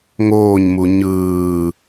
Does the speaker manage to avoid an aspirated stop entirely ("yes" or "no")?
yes